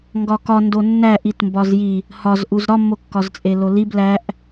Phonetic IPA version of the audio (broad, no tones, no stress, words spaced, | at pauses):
ŋɡɒkɒndo nːæʔit mbɒzji | hɒzʔuz ɾɒmːokːɒz t͡sʼelolib læʔ